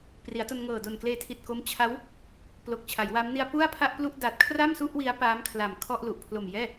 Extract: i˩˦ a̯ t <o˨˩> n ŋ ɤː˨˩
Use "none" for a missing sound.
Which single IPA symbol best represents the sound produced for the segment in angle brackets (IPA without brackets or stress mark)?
o˧